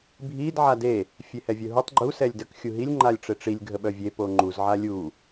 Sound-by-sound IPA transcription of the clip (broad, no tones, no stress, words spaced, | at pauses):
bʱid ʕade | fʲehɛvʲœɦutˤ ɡ͡ǃu sɛlʲdək xʲuɦilʲ ŋ͡ǃalʲʈ͡ʂeʈ͡ʂilʲ ɡʱəɓœvʲe poŋ͡ǃuz ʕalʲu